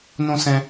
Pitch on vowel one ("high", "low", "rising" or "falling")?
high